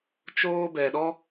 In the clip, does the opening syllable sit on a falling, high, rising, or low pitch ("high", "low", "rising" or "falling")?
high